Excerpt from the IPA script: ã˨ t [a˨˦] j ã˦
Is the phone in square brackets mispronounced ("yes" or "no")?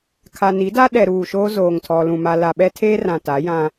no